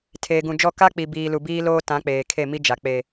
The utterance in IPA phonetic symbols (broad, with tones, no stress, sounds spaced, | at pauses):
tʰ eː˨ ɡ ũ˨ d͡ʒ ɔ˦˨ k a˦ k͡p i˨ b iː˨ l u˨ b iː˦ l oː˦ t ã˨˦ k͡p eː˨ kʰ e˦˨ m i˦ d͡ʒ a˨ k͡p e˨